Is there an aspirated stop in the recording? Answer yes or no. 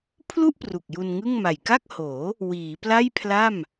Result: yes